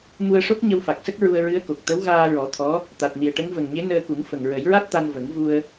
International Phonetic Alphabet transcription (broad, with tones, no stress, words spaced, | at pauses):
mu˧ə̯ʂo˦˥k̚ ɲə˧wfa˨˩k̚sə˦˥k̚ ɹu˧ə̯ɹɨ˧˥ə̯ko˨˩k̚ t̪ə˧˥wɣaː˧ɹɔ˨˩˦ t̪ʰɔ˧˥ | t̪a˨˩t̚ni˨˩ə̯ʈə˧˥ŋ və˨˩ŋɲe˧˥nəː˧ku˨˩˦ŋ fə˨˩ŋɹə˨˩˦jɹa˦˥t̚t̪a˧n və˨˩˦ŋvu˧ə̯